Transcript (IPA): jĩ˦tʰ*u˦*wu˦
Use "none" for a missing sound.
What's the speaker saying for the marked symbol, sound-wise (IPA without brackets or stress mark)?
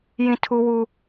u˦